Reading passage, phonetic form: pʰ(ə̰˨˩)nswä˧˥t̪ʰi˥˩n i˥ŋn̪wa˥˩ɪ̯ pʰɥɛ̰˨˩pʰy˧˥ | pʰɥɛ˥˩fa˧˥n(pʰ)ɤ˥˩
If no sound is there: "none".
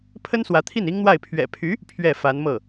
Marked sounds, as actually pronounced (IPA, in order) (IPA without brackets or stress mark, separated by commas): ə˥, m